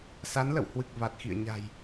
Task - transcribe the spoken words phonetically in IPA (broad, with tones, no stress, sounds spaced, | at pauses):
s a˨˦ n l ə̰˧˨ w h w ɨ˨˩ k̚ v a˨˩ t̚ x ḭ˧˨ ə̯ ɲ a̤˨˩ j